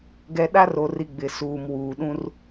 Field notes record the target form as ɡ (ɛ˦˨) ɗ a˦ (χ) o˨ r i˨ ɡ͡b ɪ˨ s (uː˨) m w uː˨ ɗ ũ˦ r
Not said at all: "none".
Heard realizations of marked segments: ɛ˨, r, uː˨

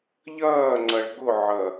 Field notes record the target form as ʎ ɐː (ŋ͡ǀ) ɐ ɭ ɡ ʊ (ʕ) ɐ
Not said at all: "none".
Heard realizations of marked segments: ŋ͡ǀ, ʕ

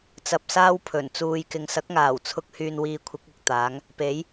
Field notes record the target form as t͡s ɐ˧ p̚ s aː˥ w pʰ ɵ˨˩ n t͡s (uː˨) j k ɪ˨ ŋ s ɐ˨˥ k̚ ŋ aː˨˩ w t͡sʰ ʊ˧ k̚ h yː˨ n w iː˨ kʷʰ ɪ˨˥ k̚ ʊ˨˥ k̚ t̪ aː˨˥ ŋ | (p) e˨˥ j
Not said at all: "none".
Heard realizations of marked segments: uː˨, p

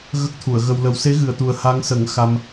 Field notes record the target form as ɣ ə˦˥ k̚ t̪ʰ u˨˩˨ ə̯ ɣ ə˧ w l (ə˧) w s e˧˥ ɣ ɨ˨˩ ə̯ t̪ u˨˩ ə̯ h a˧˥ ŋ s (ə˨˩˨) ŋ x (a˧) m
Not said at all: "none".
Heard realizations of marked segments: ə˧, ə˨˩˦, a˧

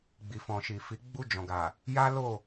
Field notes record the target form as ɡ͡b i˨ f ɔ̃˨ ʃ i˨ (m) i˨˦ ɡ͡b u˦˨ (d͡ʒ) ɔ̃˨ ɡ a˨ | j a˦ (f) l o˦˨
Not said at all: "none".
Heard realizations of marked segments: f, d͡ʒ, none

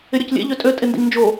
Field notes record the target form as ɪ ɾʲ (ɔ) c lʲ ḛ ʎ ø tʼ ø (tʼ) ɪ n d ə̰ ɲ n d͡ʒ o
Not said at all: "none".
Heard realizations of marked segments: ɔ, tʼ

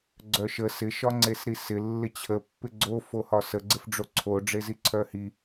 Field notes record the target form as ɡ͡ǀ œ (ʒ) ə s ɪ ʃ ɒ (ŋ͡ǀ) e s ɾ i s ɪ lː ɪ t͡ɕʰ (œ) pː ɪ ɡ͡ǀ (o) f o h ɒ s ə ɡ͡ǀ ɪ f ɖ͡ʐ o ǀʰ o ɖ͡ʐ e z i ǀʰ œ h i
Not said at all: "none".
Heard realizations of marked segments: ʃ, ŋ͡ǀ, ə, o

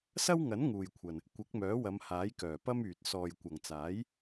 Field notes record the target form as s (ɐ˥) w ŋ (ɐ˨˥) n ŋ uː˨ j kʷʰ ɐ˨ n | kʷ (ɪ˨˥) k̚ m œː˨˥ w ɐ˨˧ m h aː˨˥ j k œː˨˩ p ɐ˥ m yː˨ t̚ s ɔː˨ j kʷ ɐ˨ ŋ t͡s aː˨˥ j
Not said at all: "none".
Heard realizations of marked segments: ɐ˥, ɐ˨˥, ɪ˨˥

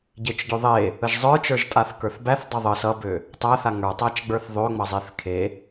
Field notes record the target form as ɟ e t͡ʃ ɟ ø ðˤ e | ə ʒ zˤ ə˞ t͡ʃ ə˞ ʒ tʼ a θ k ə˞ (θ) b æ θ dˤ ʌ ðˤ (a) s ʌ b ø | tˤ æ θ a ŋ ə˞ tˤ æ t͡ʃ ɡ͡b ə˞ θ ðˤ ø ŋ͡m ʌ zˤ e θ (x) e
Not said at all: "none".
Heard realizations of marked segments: θ, ə, kʰ

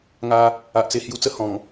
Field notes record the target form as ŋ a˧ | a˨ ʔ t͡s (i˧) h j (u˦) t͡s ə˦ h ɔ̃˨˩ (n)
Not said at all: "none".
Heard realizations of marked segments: e˧, u˧, ŋ

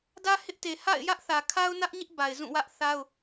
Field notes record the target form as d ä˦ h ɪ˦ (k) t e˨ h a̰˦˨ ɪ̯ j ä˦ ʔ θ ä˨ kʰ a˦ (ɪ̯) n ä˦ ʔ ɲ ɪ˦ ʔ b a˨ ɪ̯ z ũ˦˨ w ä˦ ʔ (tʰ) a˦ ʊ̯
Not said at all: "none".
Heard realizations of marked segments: ʔ, ʊ̯, θ

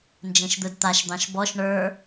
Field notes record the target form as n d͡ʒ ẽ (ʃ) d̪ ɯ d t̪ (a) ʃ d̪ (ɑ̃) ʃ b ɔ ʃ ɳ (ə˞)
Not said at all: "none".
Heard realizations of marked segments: ʃ, a, ɑ̃, ə˞

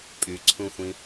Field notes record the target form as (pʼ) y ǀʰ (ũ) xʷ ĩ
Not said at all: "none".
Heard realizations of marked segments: pʼ, ũ

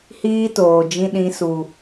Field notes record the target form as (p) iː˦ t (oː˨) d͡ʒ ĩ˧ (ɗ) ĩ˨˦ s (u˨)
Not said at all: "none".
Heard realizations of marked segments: h, oː˨, ɗ, u˨

